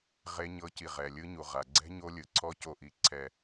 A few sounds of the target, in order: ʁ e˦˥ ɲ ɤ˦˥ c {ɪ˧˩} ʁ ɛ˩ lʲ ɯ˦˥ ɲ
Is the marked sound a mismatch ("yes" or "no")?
yes